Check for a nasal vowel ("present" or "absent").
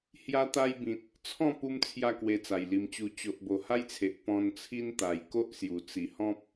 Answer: present